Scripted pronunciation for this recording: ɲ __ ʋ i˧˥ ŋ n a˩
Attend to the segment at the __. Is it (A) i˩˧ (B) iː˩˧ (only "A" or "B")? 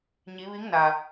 A